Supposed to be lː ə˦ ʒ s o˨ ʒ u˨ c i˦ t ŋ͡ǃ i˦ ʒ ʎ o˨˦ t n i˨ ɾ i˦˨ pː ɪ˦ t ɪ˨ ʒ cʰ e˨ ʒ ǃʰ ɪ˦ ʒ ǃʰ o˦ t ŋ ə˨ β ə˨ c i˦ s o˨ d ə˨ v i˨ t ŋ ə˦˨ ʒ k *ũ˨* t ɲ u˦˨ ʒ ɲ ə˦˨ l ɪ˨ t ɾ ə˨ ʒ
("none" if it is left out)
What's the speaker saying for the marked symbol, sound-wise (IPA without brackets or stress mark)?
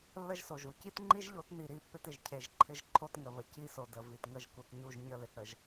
u˨